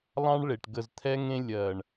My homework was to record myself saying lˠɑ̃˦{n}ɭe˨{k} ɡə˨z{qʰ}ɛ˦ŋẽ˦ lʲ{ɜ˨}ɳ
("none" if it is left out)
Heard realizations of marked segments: ɳ, ʈ, t̪ʰ, ɜ˨

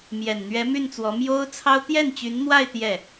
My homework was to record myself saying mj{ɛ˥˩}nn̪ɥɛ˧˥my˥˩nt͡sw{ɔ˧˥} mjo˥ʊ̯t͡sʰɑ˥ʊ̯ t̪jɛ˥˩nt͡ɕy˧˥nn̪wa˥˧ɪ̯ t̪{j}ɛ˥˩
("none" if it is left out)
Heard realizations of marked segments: ɛ˨˩, ɔ˧˥, j

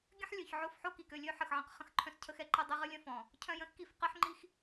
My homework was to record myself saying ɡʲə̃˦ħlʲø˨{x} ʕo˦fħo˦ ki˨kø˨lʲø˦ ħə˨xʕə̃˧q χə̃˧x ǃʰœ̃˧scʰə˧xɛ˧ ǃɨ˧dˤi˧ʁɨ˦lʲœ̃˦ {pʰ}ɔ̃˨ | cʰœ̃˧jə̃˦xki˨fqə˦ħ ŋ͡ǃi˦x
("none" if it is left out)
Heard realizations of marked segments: ç, f

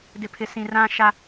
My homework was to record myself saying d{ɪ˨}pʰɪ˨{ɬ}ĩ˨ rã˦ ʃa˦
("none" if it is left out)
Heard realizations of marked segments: ɪ˨, s

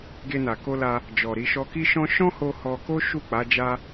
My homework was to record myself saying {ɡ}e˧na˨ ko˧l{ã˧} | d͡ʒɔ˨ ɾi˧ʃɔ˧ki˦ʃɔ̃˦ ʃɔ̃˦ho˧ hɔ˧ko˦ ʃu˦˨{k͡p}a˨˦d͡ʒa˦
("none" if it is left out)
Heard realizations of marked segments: ɡ, a˧, k͡p

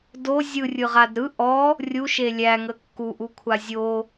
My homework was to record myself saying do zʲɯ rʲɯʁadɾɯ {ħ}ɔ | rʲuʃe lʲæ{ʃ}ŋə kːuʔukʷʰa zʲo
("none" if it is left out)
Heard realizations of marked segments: ʔ, none

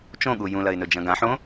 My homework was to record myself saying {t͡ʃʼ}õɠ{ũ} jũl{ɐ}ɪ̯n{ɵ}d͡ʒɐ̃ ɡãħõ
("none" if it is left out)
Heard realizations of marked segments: t͡ʃ, u, ɐ, ɵ

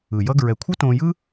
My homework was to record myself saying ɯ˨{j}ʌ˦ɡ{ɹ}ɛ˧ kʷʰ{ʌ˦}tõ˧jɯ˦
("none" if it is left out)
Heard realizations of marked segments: j, ɹ, ʌ˦

